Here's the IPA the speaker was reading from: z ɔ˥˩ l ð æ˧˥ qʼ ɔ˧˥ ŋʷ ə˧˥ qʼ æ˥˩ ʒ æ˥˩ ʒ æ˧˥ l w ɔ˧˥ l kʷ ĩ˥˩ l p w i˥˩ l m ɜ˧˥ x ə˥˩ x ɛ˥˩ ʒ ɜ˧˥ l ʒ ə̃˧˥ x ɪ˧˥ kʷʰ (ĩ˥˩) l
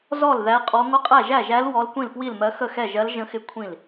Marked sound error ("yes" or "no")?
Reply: no